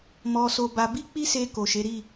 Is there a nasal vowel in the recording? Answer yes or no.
no